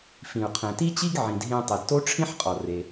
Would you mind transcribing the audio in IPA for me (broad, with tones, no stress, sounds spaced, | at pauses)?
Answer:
f ĩ˩ u̯ qʰ ɛ̃˩ t i˥ t͡ɕ i˥ ɡ ʕ ĩ˩ d ɦ ẽ˧ tˤ e˩ d t o˥ ʈ͡ʂʰ ĩ˥ ħ qʼ ɔ˩ r e˩